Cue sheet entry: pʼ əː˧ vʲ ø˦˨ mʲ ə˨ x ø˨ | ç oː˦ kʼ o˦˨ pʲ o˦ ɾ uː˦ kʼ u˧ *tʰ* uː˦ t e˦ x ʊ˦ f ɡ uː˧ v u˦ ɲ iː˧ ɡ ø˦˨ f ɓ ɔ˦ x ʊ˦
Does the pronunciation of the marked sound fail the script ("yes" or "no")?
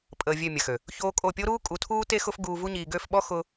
no